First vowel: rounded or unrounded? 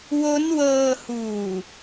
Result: rounded